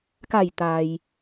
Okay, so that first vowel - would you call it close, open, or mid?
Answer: open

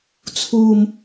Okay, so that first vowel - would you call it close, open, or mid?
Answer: close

